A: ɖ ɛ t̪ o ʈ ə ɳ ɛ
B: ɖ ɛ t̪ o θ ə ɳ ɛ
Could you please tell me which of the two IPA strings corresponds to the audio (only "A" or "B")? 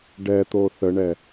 B